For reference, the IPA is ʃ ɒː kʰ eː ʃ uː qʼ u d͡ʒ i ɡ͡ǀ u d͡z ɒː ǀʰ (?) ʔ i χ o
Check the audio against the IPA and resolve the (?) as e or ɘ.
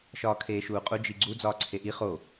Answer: e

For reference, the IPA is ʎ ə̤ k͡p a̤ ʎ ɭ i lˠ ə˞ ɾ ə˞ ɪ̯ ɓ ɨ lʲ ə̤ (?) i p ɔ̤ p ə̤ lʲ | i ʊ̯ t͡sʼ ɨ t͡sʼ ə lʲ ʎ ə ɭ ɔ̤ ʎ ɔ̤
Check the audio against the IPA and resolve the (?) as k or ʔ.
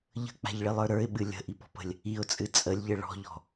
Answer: ʔ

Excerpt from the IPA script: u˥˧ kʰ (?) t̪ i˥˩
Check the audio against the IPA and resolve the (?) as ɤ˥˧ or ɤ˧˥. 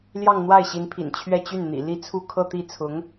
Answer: ɤ˥˧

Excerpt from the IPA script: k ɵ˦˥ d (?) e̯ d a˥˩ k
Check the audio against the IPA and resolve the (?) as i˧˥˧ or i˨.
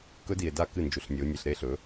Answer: i˨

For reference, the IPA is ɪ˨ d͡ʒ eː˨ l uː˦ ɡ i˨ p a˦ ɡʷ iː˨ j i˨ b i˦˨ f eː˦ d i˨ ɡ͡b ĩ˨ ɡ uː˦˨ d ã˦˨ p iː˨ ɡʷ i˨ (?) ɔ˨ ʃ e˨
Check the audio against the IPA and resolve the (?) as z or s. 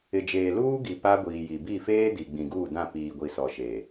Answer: s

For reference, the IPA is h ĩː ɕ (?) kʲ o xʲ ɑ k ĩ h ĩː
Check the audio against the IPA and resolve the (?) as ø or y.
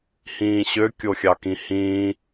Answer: ø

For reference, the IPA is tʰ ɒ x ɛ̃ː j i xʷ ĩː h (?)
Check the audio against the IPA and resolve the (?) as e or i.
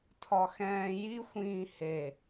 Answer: e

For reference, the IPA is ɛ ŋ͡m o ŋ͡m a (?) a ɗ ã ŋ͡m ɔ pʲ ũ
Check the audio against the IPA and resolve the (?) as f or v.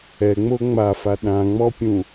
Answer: f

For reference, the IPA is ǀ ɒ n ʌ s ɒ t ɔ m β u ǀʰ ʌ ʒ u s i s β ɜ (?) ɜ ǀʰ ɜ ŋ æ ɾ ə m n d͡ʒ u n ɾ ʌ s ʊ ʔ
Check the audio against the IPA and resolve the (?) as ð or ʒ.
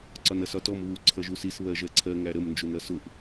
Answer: ʒ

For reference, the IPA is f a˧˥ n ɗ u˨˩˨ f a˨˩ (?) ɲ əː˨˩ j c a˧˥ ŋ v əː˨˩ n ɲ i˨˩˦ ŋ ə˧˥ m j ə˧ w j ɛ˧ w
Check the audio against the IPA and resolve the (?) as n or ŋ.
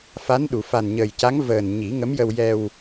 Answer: n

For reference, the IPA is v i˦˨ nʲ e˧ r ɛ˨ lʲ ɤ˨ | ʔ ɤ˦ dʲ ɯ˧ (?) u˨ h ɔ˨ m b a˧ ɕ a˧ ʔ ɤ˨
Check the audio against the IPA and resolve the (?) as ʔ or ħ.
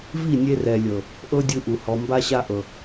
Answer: ʔ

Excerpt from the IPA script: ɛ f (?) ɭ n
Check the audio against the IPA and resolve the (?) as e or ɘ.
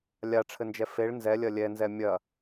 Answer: e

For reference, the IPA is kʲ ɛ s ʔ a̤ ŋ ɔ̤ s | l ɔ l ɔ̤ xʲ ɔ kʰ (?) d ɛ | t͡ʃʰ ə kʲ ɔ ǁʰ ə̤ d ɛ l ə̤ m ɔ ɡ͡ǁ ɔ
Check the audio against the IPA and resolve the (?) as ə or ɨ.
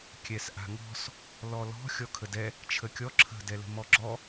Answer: ə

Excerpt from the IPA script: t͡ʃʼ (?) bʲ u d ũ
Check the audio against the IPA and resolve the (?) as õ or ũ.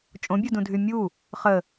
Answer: õ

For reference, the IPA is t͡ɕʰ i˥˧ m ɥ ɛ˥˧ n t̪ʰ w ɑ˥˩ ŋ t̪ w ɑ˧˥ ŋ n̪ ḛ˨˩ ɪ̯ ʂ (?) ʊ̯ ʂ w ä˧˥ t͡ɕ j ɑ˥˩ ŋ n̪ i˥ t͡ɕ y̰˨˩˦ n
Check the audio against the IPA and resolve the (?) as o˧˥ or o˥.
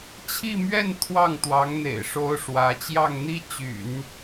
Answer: o˥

